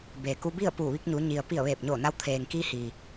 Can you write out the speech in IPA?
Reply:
beː˩ku˧bi˥˨ə̯puː˧˩ ʋi˧k̚ɲu˩˧ ɲi˩ə̯pi˧˩ə̯ ʋeː˧˩p̚ɲoː˧˩ na˧w t̪ʰeː˩ŋkiː˧hiː˩

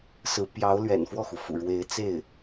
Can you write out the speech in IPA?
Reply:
sɹ̩˧˥pjɑ˧˥ʊ̯ lɥɛ̰˨˩nfwɔ˥˩xu˩fṵ˨˩ ɻwe˧˥ɪ̯t͡se˥˩ɪ̯

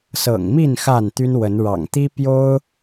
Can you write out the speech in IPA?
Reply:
sɤ̰˨˩ŋmi˥˨n xa˥˨nt̪y˦nwə˨˦n ɻɑ̰˨˩ŋt̪i˦ pjo˦ʊ̯

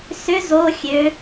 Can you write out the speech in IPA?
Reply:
sʏ zo xʲø

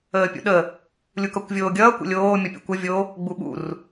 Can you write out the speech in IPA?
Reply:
əːpʲṵɗə | lʲukʌkʷvʲoːɡʲʌː kʷə̰lʲoː mʲʌpʲo̰kʷʌ vʲo | ɡ͡buɓṵr

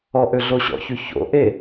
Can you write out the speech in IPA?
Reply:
ɔʔø ɮoɕɔ̰çy ço̰ ʔe

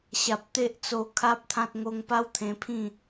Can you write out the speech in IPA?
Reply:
ɕa˨p̚ t̪e˦ʔt͡so˧ kʰa˦p̚t̪ʰã˦t̚ ŋo˧ŋpa˦wt̪ʰẽ˧pʰĩ˥˧

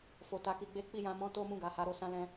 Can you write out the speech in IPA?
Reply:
fo˨ta˨˦ki˧ɡ͡be˦ k͡pi˦˨jã˧mɔ̃˦ to˦mũ˦˨ɡa˨ha˨˦ ɾo˦sã˦lɛ̃˦

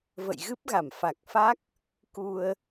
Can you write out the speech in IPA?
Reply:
və̰˧˨jɣɨ˦˥p̚ɣa˧˩mfa˨˩k̚ fa˦˥k̚ | ku˧ə̯

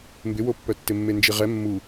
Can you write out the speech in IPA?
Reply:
mbɪwopːœtːɪ mːend͡ʒiʁɛ mːu

